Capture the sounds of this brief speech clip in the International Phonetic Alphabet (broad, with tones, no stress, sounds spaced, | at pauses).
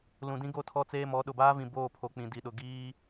l ũ˨ d ĩ˦ ɡ o˦ tʰ ɔ˦ t͡s eː˦ m ɔ˨˦ ɗ ʊ˨ b aː˦ v ĩ˨ b oː˦˨ pʰ o˨ k͡p ĩ˨ d i˨ ɗ ʊ˨ ɡ iː˦